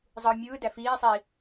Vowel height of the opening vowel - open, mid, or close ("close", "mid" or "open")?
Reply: close